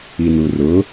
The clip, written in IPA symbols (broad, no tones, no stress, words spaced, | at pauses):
inurʊ